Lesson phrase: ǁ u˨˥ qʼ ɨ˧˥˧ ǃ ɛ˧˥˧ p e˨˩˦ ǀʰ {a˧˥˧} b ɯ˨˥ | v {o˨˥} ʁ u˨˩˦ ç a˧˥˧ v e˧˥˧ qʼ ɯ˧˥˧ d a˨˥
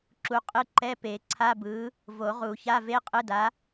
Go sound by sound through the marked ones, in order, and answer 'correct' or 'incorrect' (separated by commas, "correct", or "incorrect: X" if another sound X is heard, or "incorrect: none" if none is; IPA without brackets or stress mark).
correct, incorrect: o˨˩˦